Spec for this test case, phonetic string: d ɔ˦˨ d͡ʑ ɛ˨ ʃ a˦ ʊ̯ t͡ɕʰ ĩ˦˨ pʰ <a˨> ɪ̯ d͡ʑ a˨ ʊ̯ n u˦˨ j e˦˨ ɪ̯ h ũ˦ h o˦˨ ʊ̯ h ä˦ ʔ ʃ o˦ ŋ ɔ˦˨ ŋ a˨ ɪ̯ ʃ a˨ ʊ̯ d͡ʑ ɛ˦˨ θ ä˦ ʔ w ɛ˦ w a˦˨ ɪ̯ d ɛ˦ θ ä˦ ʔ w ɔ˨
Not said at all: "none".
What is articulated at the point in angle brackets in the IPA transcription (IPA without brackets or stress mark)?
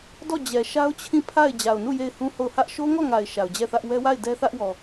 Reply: a˦˨